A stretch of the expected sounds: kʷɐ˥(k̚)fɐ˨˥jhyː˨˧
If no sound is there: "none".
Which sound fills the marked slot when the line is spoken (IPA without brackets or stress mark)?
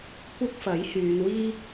k̚